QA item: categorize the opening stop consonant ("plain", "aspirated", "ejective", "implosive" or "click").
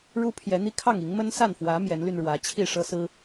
aspirated